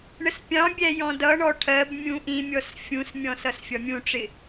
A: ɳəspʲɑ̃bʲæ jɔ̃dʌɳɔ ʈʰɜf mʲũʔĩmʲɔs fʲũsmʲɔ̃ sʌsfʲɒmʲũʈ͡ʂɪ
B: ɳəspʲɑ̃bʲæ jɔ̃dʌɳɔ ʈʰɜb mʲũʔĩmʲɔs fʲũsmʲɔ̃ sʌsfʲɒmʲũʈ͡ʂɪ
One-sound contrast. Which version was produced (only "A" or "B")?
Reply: B